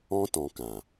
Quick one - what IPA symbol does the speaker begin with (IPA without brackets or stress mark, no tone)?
ɔ̃